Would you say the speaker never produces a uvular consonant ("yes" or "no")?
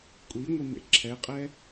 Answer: no